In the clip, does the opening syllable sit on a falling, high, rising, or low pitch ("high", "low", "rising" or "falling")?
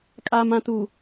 low